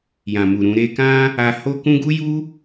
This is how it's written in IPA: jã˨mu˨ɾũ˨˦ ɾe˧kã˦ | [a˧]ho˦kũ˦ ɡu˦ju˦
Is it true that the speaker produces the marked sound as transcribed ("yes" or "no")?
yes